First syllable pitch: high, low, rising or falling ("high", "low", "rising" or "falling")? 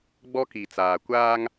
high